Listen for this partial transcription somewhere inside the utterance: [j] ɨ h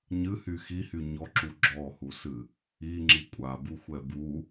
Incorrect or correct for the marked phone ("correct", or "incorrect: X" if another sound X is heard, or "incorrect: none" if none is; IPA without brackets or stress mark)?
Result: incorrect: ɲ